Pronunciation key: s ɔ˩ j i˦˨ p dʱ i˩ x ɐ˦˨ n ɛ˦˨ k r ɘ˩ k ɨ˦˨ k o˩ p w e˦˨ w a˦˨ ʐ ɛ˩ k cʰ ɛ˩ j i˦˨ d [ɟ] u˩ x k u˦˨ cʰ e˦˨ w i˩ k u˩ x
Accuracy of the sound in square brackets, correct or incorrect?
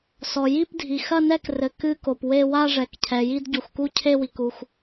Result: correct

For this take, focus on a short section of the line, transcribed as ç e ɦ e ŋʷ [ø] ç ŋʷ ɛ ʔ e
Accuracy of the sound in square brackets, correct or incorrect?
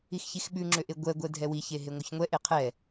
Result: incorrect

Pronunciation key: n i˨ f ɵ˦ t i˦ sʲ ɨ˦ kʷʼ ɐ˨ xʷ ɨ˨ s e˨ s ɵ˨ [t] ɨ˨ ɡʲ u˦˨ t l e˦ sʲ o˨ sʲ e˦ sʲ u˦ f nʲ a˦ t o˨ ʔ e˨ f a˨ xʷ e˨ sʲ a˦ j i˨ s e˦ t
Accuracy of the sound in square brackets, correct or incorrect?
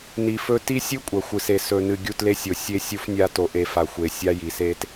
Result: incorrect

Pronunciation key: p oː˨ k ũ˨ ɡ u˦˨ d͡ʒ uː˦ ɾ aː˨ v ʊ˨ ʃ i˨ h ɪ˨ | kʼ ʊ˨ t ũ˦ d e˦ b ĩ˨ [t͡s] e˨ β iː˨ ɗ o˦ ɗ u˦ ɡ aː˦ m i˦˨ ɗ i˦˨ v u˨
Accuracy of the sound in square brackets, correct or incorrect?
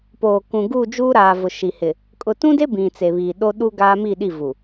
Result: correct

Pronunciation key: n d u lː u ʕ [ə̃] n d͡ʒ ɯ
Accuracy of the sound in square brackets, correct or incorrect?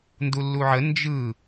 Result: incorrect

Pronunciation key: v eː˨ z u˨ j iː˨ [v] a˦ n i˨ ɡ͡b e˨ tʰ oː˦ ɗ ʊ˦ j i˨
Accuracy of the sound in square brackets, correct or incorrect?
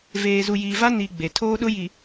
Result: correct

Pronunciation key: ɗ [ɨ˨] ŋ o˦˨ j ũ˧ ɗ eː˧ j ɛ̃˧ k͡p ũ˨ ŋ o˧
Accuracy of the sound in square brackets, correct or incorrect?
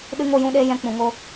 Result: incorrect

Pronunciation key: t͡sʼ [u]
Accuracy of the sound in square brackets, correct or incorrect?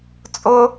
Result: incorrect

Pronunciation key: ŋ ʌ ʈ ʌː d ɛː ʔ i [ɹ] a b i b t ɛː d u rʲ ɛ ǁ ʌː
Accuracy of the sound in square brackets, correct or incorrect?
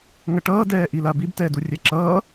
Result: incorrect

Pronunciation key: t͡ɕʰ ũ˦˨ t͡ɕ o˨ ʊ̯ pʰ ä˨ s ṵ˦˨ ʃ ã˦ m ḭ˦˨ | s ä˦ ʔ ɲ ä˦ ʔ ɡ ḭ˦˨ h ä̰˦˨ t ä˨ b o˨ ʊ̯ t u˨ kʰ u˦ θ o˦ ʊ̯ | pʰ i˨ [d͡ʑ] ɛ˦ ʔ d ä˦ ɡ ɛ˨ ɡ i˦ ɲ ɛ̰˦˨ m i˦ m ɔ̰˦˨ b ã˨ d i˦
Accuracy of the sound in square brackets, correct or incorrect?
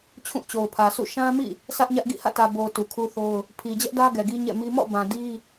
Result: correct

